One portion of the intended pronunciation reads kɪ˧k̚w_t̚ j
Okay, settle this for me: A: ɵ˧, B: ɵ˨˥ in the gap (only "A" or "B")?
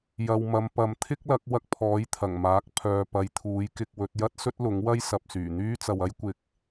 B